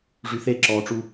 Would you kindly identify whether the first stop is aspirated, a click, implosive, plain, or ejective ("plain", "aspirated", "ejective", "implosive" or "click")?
click